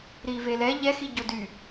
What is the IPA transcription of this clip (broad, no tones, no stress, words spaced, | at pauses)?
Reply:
ɾivelɛ ʎɛ xiɟody